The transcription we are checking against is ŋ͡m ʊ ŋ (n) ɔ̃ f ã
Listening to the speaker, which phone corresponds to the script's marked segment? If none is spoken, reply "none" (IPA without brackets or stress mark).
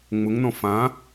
n